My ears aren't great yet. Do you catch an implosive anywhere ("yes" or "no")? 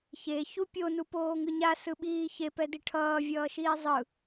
yes